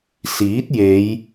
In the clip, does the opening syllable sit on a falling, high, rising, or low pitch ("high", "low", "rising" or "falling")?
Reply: rising